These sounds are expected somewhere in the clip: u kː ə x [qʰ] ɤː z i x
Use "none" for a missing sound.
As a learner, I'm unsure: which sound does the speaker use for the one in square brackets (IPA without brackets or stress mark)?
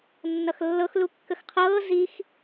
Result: qʰ